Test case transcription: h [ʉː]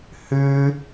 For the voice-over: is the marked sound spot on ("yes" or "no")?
yes